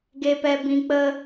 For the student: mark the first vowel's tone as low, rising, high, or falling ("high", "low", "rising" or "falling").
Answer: low